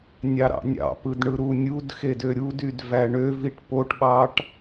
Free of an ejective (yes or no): yes